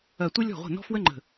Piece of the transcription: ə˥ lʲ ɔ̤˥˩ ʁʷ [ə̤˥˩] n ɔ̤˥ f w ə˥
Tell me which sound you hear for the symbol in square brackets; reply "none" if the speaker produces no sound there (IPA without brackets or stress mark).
ə̤˥˩